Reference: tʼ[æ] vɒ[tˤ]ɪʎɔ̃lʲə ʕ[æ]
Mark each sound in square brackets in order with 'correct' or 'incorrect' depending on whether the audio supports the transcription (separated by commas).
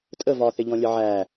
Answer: incorrect, incorrect, correct